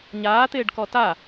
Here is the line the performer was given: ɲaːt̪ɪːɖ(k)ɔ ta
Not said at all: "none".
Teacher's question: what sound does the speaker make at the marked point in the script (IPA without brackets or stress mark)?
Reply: k